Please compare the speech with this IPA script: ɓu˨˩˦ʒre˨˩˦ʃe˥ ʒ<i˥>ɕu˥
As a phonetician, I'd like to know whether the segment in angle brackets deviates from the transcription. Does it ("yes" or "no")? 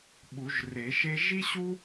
no